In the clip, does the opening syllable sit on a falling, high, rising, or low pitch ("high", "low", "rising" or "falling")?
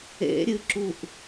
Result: rising